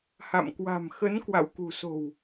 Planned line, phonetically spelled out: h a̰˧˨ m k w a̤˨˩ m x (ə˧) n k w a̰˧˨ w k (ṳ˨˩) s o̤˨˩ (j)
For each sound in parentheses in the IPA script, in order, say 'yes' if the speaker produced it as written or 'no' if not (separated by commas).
no, yes, no